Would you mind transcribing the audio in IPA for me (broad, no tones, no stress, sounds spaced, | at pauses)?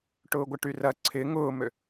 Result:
ʈ ʊː ɡʷ ə ʈ y r ɐ ǀʰ ɪ ŋ ʊː m ø